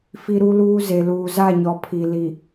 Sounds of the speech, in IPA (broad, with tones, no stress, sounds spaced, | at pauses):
f i˦ ɾ u˦ l uː˦ z e˨ l uː˨ z a˦˨ ɲ ɔ˨ pʰ i˨ l i˨